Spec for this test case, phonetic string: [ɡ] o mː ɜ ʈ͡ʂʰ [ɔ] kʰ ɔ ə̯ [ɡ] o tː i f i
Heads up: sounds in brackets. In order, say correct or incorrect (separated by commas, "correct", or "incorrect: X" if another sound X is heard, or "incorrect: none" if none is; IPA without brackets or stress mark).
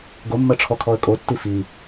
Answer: correct, correct, incorrect: kʼ